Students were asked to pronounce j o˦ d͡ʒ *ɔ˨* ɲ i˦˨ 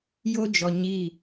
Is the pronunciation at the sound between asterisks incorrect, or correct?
correct